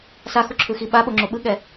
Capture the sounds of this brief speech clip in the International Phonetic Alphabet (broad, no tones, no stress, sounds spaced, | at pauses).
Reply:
s a x u ǁʰ ɯ x i ɓ a ɓ o ŋ͡ǁ o ɓ ɯ ɠ ɛ